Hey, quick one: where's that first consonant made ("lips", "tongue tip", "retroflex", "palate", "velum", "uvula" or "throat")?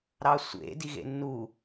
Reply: tongue tip